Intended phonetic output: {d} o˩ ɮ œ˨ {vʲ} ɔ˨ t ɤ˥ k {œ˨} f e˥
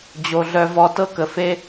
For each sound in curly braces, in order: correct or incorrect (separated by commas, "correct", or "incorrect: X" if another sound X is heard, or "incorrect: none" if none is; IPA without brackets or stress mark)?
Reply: incorrect: d͡ʑ, incorrect: v, incorrect: ə˨